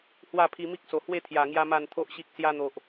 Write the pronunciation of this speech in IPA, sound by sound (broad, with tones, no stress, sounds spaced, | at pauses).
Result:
h w a˥˧ pʰ i˧ m i˦ k̚ s o˨˩ h w e˥˧ t̪ʰ j a˨˩ ŋ j a˧ m a˨˩ n t̪ʰ o˨ ʔ ɕ i˨ k̚ s j a˧ n̪ o˨ ʔ